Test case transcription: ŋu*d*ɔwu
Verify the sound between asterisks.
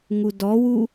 correct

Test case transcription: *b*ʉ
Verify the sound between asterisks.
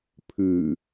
incorrect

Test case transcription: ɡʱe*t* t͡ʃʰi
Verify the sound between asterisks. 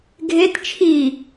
correct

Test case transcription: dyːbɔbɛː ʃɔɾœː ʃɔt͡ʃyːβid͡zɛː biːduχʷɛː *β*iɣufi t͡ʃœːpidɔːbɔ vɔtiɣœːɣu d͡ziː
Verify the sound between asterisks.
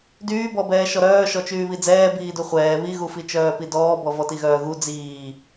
correct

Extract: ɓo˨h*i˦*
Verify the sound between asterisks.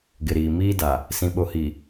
incorrect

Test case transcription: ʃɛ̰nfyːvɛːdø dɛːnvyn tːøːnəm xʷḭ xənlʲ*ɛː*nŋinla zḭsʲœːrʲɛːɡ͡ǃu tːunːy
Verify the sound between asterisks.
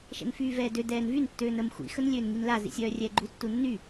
incorrect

